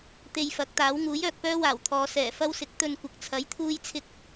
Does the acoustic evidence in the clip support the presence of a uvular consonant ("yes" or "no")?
no